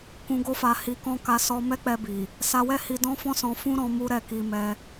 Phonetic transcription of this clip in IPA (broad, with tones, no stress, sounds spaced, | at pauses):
k ũ˧ ɡ o˦ f a˧ h i˧ k ɔ̃˦ k a˧ s ɔ˧ m ɛ˦ k͡p ɛ˧ b i˨ | s a˧ w ɛ˦ h i˧ d ɔ̃˦ f ɔ̃˦ s ɔ̃˧ f ũ˦ ɾ ɔ̃˧ m u˦ ɾ ɛ˦˨ k i˧ m ɛ˧